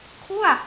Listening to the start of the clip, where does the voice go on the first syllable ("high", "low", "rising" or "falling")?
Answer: falling